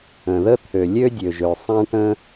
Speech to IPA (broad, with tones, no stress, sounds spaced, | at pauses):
ə̃˩ ð ə˥ t̪ʰ ø˩ lʲ ø˥ dʲ ø˩ ʒ ø˩ sˤ ã˥ ʈ ə̃˥